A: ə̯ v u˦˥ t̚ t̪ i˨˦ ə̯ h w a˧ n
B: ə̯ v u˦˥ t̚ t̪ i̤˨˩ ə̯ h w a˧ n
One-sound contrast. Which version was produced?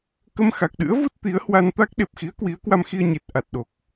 A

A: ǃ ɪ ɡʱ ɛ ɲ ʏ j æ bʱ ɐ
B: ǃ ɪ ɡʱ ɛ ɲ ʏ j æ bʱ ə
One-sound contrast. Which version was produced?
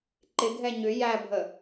B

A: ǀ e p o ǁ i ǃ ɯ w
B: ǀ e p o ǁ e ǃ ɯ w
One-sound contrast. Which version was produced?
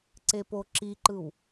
A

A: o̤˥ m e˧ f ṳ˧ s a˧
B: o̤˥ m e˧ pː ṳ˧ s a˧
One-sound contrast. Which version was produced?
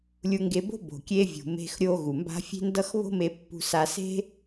B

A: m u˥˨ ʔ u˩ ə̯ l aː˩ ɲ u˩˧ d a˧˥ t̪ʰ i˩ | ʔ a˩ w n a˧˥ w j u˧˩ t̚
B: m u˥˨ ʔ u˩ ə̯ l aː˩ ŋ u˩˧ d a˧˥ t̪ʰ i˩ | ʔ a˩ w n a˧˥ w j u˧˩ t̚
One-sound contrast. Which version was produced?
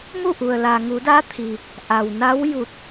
B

